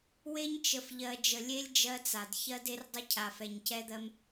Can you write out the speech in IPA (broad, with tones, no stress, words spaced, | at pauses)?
we˦ɲt͡ʃə˨fʎɜ˨ d͡ʒə˨lʲe˦lʲ d͡ʒɜ˦t͡sa˨d çɜ˦de˦rdˤə˦ cʰa˨fɛ˨ɲcɛ˦d̪ɜ˦m